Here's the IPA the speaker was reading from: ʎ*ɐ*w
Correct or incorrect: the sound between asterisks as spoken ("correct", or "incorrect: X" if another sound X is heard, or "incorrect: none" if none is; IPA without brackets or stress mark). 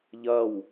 correct